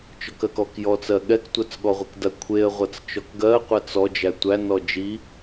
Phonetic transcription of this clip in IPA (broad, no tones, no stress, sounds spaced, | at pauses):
t͡ʃ ɔ k ɜ k ɔ k j ɔ t͡s ɜ ɠ ɛ k tʷ ɜ t͡s ɠ ɔ ʁʷ i k d ɐ kʷʰ e ə̯ ʁʷ ɐ t͡s t͡ʃ ɔ k ɡ ɜ qʷ ɛ t͡s ɔ d͡ʒ æ tʷ æ n ɔ d͡ʒ i